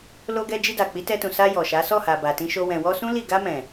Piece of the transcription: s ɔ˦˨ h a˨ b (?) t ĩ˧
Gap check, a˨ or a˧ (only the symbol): a˨